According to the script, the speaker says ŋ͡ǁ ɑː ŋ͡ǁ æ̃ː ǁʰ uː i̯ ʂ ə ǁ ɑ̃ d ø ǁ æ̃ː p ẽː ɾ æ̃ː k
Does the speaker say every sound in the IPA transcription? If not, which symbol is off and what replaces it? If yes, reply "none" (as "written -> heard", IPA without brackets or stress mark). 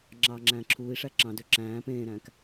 ə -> æ